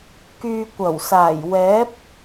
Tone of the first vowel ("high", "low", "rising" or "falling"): low